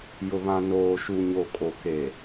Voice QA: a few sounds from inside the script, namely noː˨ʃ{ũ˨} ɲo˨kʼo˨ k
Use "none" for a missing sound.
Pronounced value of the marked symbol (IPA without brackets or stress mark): u˨